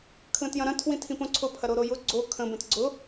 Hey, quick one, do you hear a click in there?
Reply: yes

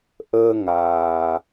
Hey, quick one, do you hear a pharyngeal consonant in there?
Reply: no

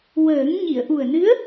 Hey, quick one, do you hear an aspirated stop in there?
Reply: no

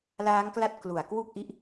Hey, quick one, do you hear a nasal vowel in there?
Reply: no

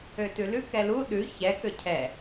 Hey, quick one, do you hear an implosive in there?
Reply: yes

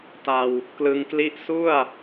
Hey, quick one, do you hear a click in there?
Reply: no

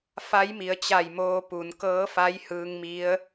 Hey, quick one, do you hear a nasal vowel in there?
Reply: no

